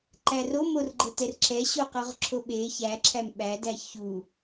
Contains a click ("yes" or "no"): yes